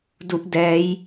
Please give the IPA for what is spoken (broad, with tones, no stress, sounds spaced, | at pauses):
d u˦˥ ʔ d ɛː˦˥ j